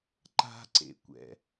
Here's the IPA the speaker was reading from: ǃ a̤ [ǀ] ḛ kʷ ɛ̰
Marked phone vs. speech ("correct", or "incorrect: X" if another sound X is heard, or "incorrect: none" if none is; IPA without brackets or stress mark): correct